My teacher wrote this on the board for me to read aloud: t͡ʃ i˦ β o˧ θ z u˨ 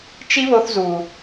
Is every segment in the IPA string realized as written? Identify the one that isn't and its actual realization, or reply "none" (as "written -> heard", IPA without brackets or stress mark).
none